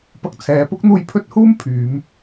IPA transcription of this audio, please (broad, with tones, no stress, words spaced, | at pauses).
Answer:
pɐ˧k̚t͡sʰɛː˨˧ pʊ˥k̚ n̪uː˧jpʰɵ˥t̚huː˥m pʰyː˨˧m